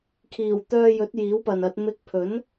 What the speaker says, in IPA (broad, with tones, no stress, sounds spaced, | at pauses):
kʰ iː˨˩ w t̪ œː˧ j ɵ˨˥ t̚ j iː˨˥ w p ɐ˨ n ɐ˨˥ t̚ m ɪ˧ k̚ pʰ ɵ˨˥ n